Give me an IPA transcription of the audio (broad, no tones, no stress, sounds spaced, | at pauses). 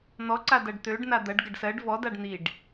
n̪ ɔ ǀ a d ɐ ɖ t̪ ø ɖ n a d̪ ɐ ɖ ɡ ɐ ɖ s ɜ ɖ v ɔ d a ɖ n̪ i ɖ